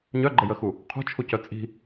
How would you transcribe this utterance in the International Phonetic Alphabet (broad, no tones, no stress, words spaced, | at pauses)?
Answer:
ɲœɡ͡ǃəjəxu | qʰṳt͡ʃʰucœ t͡sʼi̤